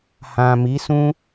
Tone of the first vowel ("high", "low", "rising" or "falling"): low